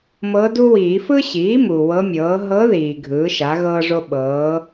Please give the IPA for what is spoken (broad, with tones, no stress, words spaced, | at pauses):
mɤ˧˥du˥wiː˨˩˦ fɯ˥ɕiː˩˥mu˩ wɤ˧˥mʲɤː˩˥ ɦɤ˧˥ ðiː˩ ɡʱɯː˩˥ʃa˩˥ɣɤː˥ʐo˥ ɓɤː˩˥